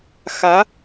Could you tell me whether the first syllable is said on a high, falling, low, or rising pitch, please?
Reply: rising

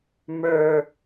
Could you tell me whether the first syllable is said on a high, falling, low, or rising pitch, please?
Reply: high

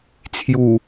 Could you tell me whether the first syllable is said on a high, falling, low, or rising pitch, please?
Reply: low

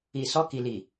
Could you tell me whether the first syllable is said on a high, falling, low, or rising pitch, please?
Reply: low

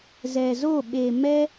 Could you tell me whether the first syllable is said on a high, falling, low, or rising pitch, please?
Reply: low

